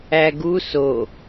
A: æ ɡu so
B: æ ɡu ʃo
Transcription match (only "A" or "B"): A